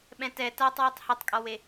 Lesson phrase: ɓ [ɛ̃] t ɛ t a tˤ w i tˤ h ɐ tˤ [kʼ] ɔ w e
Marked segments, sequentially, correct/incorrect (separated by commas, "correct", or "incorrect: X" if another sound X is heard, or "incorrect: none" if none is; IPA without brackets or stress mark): correct, correct